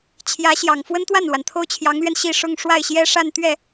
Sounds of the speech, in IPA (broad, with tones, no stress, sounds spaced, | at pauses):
t͡ɕʰ j ä˧˥ ɕ j ɑ˨˩ ŋ f w ə˥ n t̪ w a˥˩ n l w a˩ n t̪ʰ o˥˩ ʊ̯ t͡ɕʰ j ɑ˧˥ ŋ l ɥ ɛ˧ n ɕ i˥˧ ʂ ʊ˥˧ ŋ ʂ w a˥˩ ɪ̯ ɕ j ɛ˥ ʂ a˥˧ n t̪ ɥ ɛ˥˩